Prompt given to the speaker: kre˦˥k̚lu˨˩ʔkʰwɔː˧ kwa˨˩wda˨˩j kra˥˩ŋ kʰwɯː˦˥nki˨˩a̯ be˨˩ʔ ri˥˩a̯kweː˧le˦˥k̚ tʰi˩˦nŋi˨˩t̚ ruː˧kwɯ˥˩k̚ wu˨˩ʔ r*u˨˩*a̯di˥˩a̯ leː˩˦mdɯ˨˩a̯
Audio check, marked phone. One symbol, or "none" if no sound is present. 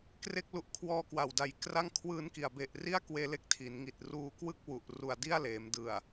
u˨˩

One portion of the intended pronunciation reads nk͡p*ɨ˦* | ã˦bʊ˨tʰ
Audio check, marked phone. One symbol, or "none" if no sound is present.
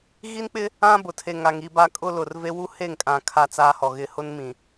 ɪ˦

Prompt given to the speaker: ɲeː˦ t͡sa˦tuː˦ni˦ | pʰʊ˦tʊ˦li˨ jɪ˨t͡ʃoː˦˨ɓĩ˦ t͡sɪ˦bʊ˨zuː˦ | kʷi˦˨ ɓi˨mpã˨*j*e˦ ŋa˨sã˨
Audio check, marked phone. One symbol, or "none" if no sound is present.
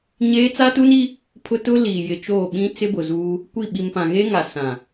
ɣ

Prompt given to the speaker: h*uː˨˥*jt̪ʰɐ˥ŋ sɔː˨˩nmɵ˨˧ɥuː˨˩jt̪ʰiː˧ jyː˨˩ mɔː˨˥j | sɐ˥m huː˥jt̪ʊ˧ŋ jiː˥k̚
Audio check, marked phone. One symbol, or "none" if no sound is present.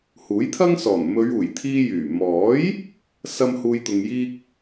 uː˨˥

